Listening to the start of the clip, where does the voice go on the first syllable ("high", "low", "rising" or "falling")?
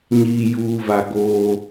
low